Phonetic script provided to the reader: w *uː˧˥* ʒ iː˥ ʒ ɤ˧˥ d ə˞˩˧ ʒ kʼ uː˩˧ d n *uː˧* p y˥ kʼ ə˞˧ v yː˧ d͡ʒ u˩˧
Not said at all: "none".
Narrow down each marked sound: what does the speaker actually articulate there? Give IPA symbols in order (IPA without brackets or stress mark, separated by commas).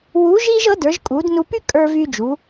uː˧˥, u˧